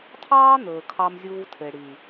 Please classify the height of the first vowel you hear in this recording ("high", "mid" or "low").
low